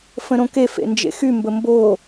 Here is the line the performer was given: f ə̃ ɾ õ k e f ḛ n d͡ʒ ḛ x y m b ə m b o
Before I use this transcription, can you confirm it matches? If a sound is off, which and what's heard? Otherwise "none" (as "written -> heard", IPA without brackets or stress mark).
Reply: none